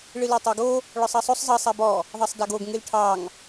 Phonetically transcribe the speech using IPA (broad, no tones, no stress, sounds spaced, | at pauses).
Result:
ɭ ɨ l ɑ tˤ a ɡ o | ɭ ɔ sˤ ɑ sˤ o sˤ zˤ ʌ sˤ a b ɔ | ðˤ ɑ sˤ d a ɡ o ɡ ŋ ɨ l ʈʰ ɑ ŋ